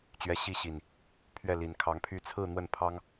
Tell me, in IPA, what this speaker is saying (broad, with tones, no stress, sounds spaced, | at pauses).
t͡ɕ ɥ ɛ˨˦ ɕ i˥˨ ɕ i˨˩ n | pʰ ɥ ɛ˥˨ l i˨˦ n kʰ ɑ˨˦ ŋ pʰ y˥˨ t͡sʰ ɹ̩˥˨ n̪ w ə˥˨ n pʰ ɑ˦ ŋ